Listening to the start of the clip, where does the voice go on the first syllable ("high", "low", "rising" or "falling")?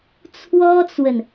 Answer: high